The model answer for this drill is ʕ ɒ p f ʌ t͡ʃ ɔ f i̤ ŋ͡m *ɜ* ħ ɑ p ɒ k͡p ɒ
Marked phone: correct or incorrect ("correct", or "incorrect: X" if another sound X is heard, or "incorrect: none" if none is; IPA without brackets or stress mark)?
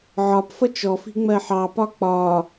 correct